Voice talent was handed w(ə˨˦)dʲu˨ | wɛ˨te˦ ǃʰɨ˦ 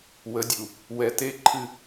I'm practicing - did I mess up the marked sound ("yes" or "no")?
no